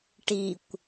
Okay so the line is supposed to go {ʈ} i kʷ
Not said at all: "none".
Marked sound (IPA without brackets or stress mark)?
ʈ